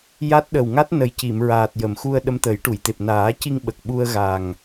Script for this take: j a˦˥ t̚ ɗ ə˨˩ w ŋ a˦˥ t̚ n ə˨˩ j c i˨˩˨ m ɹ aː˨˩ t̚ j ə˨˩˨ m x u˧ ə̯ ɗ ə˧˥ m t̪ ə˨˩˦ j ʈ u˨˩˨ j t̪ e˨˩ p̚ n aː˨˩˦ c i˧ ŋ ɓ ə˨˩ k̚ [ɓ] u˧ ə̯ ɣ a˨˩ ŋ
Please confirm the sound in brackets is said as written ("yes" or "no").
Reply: yes